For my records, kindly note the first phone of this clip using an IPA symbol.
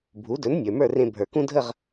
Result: bʱ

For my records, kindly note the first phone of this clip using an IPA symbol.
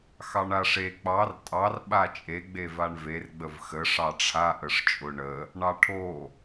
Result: x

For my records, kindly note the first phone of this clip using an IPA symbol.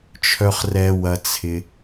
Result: t͡ʃʰ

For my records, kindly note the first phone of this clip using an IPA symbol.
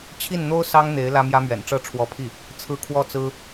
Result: t͡ɕʰ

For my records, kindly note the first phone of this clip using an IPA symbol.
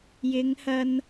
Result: j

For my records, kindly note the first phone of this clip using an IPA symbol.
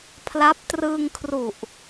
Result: pʰ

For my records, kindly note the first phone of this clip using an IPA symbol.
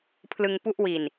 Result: pʰ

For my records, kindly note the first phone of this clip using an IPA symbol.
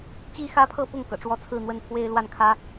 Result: t͡ɕ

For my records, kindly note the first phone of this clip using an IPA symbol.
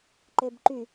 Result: ǃ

